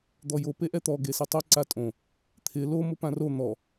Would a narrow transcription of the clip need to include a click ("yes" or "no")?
yes